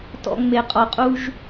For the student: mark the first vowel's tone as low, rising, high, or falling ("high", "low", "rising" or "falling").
low